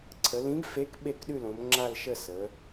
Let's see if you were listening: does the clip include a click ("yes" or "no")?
yes